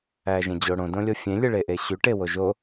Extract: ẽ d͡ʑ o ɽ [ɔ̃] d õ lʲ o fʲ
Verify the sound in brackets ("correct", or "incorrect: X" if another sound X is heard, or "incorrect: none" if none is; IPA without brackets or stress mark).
incorrect: õ